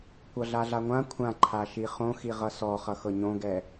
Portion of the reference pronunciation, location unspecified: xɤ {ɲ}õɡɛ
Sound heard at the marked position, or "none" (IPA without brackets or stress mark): ɲ